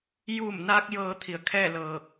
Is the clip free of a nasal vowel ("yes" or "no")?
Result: yes